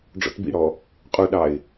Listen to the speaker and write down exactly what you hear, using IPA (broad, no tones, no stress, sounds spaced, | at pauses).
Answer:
ɖ͡ʐ ɔ̰ t b ḭ ɽ ɔ | qʼ u ɗ ɑ ɪ̯